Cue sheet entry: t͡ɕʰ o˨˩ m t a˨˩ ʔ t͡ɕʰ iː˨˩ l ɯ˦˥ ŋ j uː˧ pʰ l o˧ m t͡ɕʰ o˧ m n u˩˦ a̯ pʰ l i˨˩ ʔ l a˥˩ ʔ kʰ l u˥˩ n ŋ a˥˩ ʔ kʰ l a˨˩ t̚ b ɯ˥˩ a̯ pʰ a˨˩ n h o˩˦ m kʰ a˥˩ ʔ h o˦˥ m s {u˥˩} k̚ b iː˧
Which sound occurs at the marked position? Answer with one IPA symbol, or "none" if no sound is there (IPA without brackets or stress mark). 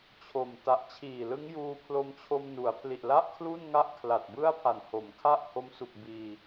u˨˩